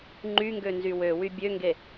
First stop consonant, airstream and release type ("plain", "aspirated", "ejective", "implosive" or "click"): click